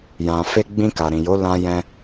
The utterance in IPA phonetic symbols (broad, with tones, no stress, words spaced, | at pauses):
jã˨ fe˧ ɡ͡bĩ˧ka˨ ɾĩ˨jo˨˦ lã˧jɛ̃˧